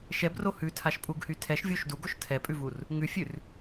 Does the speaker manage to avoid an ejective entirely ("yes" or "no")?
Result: no